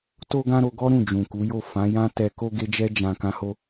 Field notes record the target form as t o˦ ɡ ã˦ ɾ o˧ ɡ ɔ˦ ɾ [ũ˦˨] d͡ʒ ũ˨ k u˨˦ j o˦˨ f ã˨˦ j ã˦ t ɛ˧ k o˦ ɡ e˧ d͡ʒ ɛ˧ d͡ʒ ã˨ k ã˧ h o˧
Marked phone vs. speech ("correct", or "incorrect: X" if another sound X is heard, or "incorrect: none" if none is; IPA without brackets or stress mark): correct